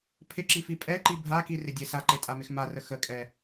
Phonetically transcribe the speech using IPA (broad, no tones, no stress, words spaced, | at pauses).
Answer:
pʰɪǁifi pʼɛǃi bʱakirɪdʲe saǃetʼamɪx marə xəkʼɛ